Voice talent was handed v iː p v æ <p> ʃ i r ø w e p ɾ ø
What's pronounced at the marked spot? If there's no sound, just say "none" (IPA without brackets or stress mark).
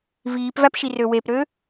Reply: p